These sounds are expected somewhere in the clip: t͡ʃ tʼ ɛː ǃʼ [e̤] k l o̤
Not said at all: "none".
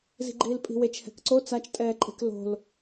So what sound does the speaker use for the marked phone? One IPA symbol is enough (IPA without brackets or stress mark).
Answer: e̤